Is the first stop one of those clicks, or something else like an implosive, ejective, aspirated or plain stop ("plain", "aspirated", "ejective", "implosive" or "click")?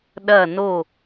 implosive